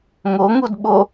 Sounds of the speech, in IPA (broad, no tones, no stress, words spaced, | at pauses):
ŋoŋudɓo